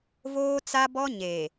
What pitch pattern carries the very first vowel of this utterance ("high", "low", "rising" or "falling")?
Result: high